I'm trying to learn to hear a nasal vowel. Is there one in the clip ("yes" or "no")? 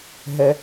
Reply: no